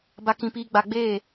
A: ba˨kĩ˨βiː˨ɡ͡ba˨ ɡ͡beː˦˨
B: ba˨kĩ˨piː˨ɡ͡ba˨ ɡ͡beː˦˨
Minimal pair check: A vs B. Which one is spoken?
B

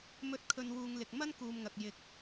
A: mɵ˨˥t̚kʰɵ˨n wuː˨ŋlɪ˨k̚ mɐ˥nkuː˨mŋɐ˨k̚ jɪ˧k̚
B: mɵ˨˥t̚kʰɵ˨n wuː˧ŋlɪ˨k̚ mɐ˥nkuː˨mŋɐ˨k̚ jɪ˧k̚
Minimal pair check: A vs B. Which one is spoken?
A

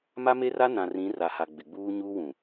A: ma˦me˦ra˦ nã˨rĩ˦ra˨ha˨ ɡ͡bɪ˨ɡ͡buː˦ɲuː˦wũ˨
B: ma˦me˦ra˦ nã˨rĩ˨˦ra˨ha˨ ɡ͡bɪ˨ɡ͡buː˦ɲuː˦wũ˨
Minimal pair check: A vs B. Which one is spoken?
B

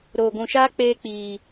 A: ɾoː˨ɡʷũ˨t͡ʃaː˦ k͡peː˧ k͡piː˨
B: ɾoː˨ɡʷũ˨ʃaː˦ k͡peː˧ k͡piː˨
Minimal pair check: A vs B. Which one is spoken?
B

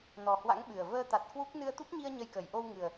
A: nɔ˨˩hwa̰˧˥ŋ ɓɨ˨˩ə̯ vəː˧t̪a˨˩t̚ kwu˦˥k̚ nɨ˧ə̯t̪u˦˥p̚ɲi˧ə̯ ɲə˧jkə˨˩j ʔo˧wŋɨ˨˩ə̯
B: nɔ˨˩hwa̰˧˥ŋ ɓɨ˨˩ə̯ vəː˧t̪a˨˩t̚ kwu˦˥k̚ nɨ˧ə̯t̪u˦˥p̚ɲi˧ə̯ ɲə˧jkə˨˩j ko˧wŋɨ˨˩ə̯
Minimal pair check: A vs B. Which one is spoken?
A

